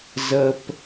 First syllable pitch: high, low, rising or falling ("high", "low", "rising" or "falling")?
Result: low